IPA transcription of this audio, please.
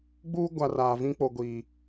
ɡ͡b uː˦ ɡʷ a˨ r aː˨ v ĩ˦ k͡p o˨ ɡʷ iː˨

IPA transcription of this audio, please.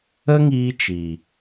ə˦ ŋ iː˧ t͡ʃ i˨

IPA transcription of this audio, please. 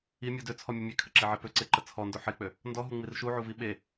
i mʲ u d ø t͡sʰ ɔ mʲ ə mʲ e kʰ ə ǁ e ʕ e p ø ǀ e ǃ ə t͡sʰ ɔ n d o ħ e k͡p ø | n d ɔ ɦ u ŋ͡m i r ʃ u ʕ u v i ɓ e

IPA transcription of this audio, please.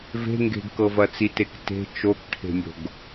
v e̤ ŋ ɡ e̤ ɡ k ɤ v ɐ t͡s i t e k t e̤ t͡ʃ o k ʈʰ e̤ mʲ o̤ ɡ

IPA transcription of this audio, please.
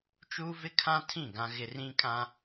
t͡ʃ uː˦ v ɪ˦ kʰ ã˦ tʰ ĩ˦˨ ɡ ã˦ ɣ ɪ˦ r ĩ˦ kʼ ã˦

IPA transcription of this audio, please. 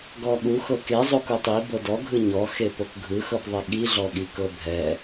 ɡ ɔ ɠ u x ɤ k e zˤ o k u tˤ i b ɤ d ɔ ɡʱ ɯ ɲ ɔ x e p o k ɡʱ ɯ x ɤ p ðˤ i ɠ i ɮ ɔ ɠ i k ɤ bʱ ɛ

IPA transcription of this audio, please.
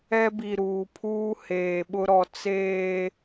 ɛ˦ b i˨ ɾ uː˨ pʰ uː˦ h eː˨ ɓ ʊ˦ ɾ ɔ˨ t͡s eː˨

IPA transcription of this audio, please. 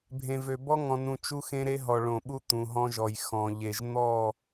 bʱ ẽ˨ v ø˨ b ɔ˦ ŋ ɔ̃˨ n ũ˨ t͡ʃ u˦ x ẽ˦ ɾ e˦ ɦ ɔ˨ ɭ õ˨ ɓ u˦ t̪ ũ˨ ɦ ɔ̃˦ ʒ ɔ˨ j x ɔ̃˨ ʎ e˨ ʒ n̪ ɔ˦˨

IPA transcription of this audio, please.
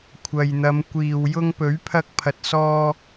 kʷʰ ɐ˨ j n̪ ɐ˨˧ m kʷ iː˨ w j ʊ˥ ŋ p ɵ˨˥ ɥ pʰ ɐ˧ k̚ pʰ ɐ˨ t̚ s ɔː˧

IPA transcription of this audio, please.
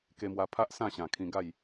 k e˧ m w a˧ pʰ a˦ ʔ s ã˥˧ ɕ ã˨˩ kʰ ĩ˧ ɡ a˥˧ j

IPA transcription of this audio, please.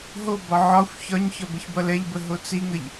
ɦ o b ɒ ʕ ɒ xʷ ç ɒ ɲ ç ɒ b ə ç b ʌ l ɛ ʎ b ə ɦ o t͡s i ŋ ə ʎ

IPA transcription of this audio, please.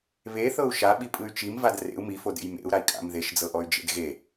β e θ ɤ u̯ ʃ a ɓ i pʼ ɯ y̯ t͡ʃ i m v a d r ḛ u̯ m i f o d ḛ j m ḛ u̯ ɾ a i̯ kʼ a̰ m ð e ʃ d͡z ɤ ʔ ɔ y̯ d͡ʒ ḛ d ɣ e

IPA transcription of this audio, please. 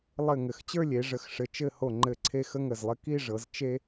lˠ ɘ˧˩ ŋ ɘ˩˧ x t͡ɕ ə˞˥˧ lʲ e˩˧ ʐ ə˩˧ x ʂ ɘ˩˧ t͡ʃ ɘ˥˧ h o˧˩ ŋ͡ǃ ɘ˧˩ ǀʰ e˥˧ x ə˥ ŋ ə˧˩ z lˠ ɘ˥ k i˥˧ ʐ ɤ˩˧ z t͡ʃ e˥

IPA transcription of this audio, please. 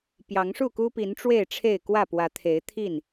p j ɑ˨˦ ŋ ʂ u˥˨ k u˦ p i˨˦ n ʈ͡ʂ w e˥˨ ɪ̯ ʈ͡ʂʰ e˥˨ ɪ̯ k w ä˥˨ p w ä˨˦ t̪ʰ e˨˦ ɪ̯ t̪ʰ i˥˨ n

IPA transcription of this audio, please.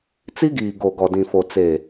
t͡s i˦ ɡ iː˨ ɡ o˨ ɡ ɔ˨ d ĩ˨ f o˨ t͡s e˨

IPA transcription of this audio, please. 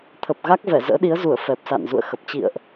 t̪ʰ ə˨˩ p̚ ɣ a˦˥ k̚ v ɛ˧˩ z ə̰ː˧˥ ɗ i˨˦ ə̯ z u˧˩ ə̯ f ɛ˨˩ p̚ s a̰˧˨ n z ṵ˧˨ ə̯ x ə˨˩ p̚ t͡ɕ ḭ˧˨ ə̯ ʔ

